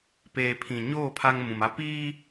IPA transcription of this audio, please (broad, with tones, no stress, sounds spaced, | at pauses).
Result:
p eː˨ pʰ ĩ˨ ɲ oː˦˨ pʰ a˦ ŋ m ũ˨ m a˦ p iː˦